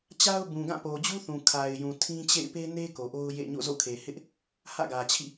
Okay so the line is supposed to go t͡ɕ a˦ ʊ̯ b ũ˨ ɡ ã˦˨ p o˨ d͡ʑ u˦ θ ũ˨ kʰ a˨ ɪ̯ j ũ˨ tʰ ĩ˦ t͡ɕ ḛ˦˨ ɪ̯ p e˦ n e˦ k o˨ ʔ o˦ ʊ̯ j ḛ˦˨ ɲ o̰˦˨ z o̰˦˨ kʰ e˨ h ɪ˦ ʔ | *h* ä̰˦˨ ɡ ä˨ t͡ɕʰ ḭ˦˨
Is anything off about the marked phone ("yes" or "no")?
no